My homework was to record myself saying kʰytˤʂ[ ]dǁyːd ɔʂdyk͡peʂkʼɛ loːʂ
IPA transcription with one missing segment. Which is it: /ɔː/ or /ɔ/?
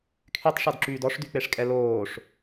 ɔ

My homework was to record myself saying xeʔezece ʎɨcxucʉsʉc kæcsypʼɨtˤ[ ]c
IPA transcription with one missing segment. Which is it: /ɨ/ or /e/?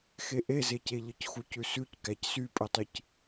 ɨ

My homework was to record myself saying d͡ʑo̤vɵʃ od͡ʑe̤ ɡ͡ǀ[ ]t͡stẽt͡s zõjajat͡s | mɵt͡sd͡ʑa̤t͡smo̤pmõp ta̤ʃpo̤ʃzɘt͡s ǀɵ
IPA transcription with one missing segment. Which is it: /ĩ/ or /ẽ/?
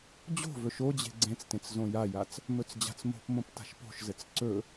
ẽ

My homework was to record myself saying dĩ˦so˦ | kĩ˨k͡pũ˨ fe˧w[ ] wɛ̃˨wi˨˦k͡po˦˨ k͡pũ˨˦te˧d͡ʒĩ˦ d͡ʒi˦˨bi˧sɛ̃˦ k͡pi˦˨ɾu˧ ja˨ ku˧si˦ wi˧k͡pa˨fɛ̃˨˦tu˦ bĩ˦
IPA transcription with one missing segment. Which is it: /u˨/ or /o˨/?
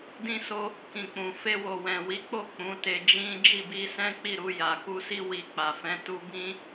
o˨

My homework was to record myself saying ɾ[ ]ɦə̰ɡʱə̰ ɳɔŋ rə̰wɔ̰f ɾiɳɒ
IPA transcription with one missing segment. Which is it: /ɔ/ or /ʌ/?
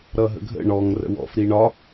ʌ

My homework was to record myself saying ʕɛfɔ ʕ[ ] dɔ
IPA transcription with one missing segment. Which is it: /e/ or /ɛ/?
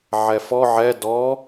ɛ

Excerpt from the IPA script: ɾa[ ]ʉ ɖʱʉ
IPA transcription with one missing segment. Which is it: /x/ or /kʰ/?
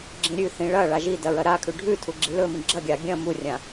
kʰ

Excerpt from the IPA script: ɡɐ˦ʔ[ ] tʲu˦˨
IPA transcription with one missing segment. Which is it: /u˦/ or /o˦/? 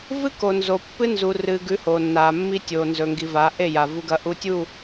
u˦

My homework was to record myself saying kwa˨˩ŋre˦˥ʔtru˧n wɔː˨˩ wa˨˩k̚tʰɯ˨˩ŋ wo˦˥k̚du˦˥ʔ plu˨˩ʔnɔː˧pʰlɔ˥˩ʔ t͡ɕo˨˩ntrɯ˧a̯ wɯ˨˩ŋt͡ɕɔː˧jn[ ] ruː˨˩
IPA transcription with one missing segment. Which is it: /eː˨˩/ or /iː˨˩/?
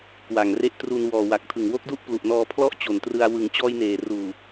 eː˨˩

